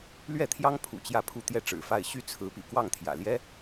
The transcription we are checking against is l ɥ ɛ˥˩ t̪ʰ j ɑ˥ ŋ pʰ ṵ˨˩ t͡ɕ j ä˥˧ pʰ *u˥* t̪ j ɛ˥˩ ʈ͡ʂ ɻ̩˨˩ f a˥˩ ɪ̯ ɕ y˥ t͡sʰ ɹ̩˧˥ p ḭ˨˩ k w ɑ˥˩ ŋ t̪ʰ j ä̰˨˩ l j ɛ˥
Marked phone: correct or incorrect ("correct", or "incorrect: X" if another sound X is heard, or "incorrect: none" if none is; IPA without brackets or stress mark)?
incorrect: u˥˧